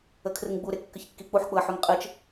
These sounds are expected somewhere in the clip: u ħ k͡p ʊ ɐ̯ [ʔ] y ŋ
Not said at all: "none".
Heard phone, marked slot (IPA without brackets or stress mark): ħ